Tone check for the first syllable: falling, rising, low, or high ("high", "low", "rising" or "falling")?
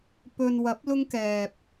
low